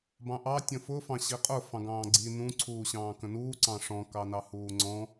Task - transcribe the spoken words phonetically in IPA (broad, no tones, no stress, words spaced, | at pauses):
bɑ̃ʔɑ tʲə̃fʊ fɑ̃ɕiqʼʊ fɑ̃ɡɑ̃ːɡ͡ǀi nũ ǀʰuːɕɑ̃ːkə̃nuː ǀɑ̃ʂɔ̃ kɑnɑhuːŋ͡ǀɔ̃